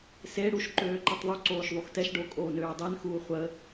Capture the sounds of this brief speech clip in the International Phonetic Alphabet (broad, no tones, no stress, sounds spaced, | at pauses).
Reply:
s e ɽ u ʃ ǃ øː ǃ e tˤ ðˤ u ǀ oː ʃ ðˤ u x t ɛ ʃ ɖ o kʼ oː n øː dˤ e n x uː χʷ ə